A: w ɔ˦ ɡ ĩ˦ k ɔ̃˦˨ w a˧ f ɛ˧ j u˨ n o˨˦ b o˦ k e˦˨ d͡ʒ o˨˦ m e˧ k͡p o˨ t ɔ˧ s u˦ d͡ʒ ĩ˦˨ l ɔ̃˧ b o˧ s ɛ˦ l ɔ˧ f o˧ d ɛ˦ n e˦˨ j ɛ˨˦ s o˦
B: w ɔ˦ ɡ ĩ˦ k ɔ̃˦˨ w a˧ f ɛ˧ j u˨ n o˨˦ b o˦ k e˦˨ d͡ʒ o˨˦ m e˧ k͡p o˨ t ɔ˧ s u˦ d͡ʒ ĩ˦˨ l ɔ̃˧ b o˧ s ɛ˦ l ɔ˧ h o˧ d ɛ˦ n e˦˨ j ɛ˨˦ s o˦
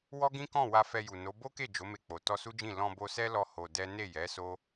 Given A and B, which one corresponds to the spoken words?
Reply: B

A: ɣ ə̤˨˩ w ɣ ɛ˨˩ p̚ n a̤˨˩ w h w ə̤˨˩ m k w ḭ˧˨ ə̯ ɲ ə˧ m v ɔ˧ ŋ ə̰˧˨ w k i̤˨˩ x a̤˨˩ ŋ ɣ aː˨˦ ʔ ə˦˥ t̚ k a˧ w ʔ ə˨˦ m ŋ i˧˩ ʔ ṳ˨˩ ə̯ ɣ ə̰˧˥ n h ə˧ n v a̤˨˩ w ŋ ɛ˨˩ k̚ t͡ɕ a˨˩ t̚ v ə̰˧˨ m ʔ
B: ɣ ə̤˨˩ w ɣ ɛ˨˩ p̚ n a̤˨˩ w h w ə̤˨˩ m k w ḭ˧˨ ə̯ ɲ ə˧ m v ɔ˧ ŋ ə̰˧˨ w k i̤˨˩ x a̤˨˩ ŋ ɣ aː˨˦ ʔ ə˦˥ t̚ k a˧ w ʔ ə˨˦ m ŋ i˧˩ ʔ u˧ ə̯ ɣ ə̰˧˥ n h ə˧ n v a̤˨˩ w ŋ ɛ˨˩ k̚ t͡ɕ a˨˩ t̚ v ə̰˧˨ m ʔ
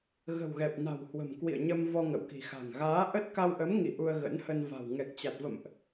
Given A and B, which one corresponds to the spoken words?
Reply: B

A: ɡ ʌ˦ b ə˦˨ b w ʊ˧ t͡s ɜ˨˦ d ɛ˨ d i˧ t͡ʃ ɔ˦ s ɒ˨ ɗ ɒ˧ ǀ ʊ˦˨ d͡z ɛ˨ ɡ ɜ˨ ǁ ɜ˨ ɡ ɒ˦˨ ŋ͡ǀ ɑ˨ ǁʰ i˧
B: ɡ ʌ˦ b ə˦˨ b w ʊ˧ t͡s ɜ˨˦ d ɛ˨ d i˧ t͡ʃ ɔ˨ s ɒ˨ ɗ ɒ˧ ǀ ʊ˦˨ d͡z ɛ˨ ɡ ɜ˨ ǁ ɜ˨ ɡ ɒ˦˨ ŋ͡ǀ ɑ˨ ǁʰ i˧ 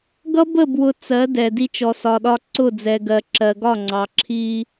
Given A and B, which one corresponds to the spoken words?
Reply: B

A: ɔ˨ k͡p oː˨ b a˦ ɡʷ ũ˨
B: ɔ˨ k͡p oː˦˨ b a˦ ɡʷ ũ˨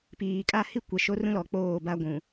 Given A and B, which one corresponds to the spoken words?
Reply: B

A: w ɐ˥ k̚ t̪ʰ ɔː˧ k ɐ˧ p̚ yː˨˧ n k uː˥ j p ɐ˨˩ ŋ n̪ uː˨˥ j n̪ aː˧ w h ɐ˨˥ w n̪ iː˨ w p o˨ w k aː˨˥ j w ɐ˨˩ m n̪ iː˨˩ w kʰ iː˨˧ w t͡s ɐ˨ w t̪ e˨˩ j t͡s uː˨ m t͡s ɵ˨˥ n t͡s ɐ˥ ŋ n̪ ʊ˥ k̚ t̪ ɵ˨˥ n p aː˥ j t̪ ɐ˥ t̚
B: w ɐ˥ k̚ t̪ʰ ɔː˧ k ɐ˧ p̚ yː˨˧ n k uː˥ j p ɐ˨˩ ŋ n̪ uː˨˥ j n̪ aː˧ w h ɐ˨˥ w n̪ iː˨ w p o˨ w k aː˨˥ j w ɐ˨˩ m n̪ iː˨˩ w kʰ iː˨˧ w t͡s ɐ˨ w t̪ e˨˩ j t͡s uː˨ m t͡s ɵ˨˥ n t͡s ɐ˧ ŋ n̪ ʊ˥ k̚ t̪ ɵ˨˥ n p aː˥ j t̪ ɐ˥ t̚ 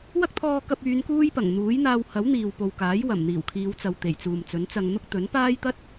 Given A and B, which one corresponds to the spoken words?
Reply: B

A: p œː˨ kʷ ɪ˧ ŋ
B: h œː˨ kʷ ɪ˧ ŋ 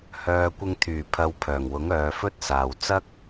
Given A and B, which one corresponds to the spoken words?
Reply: B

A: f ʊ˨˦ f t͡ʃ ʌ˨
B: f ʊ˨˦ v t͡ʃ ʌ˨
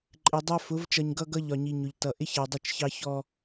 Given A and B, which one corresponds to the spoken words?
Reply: B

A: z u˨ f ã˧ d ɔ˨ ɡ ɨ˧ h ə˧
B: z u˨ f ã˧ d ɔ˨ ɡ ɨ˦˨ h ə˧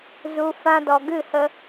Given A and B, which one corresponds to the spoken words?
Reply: B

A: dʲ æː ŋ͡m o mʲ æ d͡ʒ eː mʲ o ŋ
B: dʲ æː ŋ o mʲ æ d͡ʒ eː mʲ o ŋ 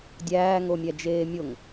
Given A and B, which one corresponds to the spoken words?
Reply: B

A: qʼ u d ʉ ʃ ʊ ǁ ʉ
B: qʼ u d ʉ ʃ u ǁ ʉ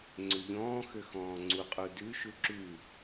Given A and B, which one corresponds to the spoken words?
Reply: B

